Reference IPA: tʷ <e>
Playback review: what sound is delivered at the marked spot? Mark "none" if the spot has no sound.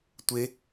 e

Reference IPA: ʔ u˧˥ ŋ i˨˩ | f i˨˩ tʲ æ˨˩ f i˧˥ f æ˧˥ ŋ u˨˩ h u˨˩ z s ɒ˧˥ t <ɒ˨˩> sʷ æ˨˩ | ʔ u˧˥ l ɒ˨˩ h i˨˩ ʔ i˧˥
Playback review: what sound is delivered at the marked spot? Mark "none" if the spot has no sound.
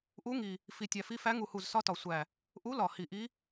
ɒ˨˩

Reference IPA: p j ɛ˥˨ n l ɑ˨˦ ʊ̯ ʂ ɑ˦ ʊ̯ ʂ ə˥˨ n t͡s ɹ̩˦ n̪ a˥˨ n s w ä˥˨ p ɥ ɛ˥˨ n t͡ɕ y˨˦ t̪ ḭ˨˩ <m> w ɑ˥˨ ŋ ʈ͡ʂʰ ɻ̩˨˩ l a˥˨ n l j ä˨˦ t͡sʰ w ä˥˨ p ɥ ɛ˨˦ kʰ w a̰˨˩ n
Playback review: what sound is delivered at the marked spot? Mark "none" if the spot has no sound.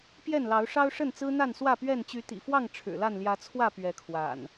f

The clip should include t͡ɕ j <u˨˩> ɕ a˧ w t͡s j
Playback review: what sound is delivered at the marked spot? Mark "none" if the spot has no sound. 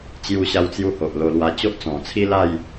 u˧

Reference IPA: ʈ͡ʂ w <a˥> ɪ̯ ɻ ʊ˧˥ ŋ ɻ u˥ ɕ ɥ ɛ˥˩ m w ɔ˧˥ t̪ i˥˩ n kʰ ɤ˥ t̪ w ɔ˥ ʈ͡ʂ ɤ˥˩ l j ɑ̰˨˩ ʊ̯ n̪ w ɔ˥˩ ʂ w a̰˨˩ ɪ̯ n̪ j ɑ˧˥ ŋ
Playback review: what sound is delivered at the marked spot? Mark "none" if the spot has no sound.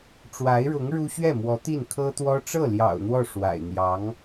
a˧˥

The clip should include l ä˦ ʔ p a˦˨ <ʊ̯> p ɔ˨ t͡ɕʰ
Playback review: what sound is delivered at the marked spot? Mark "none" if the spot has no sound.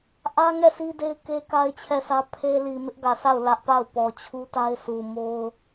ʊ̯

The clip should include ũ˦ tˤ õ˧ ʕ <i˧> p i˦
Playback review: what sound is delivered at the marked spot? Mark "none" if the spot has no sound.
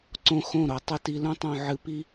ɨ˧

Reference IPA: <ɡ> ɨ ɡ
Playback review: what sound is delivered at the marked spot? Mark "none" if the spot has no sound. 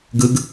ɡ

